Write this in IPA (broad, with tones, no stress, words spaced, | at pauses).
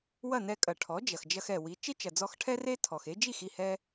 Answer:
wɐ˥˩nɛ˧kʼɐ˩ ʈʰɔ˩˥d͡ʒɐ˩x d͡ʒɐ˧xɛ˩ wi˩˥ t͡ʃe˥t͡ʃɐ˩d͡zɔ˧xʈʰɛ˥ re˥ tʰɔ˩xe˥ d͡ʒi˥˩xi˥˩hɛ˧